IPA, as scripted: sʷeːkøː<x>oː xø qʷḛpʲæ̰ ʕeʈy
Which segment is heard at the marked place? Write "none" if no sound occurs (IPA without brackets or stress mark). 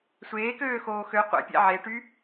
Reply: x